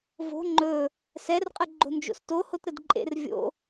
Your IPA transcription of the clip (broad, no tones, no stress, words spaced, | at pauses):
vo̤ ŋ͡ǃɵ | sɛrqʼə ɡ͡ǃo̤nd͡ʒo̰sto hotɾədǃʼḛr vʲo̰